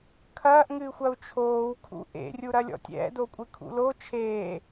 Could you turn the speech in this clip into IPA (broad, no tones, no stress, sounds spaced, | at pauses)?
kʰ ɐː ʔ ŋ ɨː xʷ ɐ u̯ t͡ʃʰ oː w kʰ ṵ ʔ ḛ rʲ u ɾ ɐ lʲ ɔ̰ tʲ ɛ̰ d o kʷʼ ɨ kʰ ṵ l o t͡ʃʰ eː